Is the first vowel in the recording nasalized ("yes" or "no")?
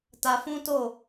no